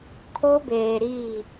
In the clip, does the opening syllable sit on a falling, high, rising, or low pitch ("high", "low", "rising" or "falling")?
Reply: high